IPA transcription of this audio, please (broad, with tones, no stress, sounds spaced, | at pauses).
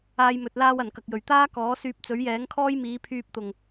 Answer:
aː˧ j m ɵ˨ t̚ l aː˧ w ɐ˨˩ n k ɐ˨ k̚ j ɵ˨˩ ɥ t̪ aː˥ k ɔː˨˥ s yː˧ p̚ t͡s ɵ˨˥ ɥ j ɛː˨˥ ŋ kʰ ɔː˥ j m iː˨˥ pʰ yː˧ p̚ t̪ ʊ˨˩ ŋ